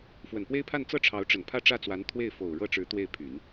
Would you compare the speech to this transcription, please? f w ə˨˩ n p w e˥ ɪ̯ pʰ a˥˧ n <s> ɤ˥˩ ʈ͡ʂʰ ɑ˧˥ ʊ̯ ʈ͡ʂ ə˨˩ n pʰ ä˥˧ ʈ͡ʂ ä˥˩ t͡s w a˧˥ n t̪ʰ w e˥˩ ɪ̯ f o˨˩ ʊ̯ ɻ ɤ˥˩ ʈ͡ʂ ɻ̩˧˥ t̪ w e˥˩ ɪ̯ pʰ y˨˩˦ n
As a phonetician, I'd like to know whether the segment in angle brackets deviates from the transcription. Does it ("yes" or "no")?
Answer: yes